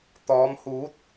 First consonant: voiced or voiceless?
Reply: voiceless